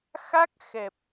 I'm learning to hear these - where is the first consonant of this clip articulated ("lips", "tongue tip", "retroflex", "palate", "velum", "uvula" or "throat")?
velum